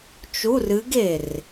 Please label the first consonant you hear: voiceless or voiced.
voiceless